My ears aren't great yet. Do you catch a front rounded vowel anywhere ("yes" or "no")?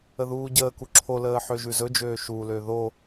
yes